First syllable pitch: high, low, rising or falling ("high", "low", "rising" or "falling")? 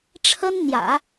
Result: high